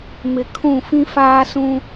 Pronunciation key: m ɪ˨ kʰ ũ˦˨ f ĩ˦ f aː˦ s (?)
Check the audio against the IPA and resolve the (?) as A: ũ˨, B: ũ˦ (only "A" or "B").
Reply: B